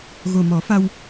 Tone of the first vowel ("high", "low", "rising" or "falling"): low